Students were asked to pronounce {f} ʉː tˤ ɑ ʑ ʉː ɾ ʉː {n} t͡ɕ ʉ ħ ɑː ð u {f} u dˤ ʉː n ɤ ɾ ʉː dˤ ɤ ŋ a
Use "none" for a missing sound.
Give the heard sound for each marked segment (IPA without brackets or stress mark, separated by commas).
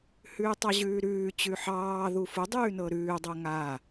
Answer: h, none, f